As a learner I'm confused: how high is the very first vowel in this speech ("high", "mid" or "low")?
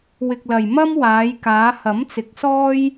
high